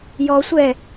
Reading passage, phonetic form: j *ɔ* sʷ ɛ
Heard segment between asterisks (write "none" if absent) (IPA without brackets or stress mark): ɔ